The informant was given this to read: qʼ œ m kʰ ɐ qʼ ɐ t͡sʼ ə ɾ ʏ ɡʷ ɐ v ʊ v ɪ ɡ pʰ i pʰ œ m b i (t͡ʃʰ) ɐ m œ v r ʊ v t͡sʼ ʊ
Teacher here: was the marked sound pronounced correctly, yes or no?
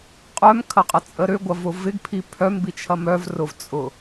yes